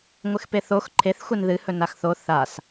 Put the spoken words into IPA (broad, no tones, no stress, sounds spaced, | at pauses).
ŋʷ ɨ x p e θ o x ǃʰ e θ xʷ e n ð ɨ h ɵ n a x θ o θ a s